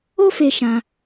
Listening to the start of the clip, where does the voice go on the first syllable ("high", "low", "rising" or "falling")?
high